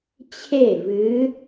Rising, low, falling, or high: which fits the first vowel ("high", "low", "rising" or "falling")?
falling